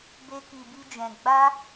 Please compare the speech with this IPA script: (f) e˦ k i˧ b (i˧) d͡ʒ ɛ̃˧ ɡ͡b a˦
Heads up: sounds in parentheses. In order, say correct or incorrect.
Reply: incorrect: b, incorrect: i˦

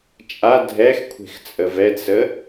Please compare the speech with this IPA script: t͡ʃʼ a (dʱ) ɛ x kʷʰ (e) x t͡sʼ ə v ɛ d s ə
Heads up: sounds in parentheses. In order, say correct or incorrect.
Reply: correct, incorrect: e̤

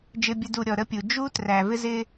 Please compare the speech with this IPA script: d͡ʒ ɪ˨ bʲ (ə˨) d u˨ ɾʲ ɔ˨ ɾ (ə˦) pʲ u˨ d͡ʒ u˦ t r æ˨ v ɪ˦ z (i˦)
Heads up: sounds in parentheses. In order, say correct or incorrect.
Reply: correct, correct, incorrect: ɪ˦

